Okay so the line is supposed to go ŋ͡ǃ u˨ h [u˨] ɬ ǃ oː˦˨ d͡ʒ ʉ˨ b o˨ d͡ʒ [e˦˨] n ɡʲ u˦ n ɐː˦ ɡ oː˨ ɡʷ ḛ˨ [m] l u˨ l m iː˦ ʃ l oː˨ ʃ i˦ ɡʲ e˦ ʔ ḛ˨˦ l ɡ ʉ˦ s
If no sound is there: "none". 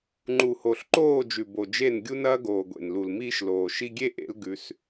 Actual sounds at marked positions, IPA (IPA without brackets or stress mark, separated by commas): o˨, e˦˨, n